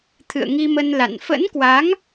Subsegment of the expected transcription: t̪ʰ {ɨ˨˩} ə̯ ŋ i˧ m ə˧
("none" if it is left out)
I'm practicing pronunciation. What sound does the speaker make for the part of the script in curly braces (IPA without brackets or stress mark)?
ɨ̰˧˨